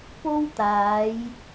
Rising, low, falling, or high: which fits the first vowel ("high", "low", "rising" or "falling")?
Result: high